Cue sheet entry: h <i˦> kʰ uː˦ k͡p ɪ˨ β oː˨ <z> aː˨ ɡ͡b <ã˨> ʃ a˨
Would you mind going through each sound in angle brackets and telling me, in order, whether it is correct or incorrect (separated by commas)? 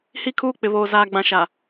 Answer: correct, correct, correct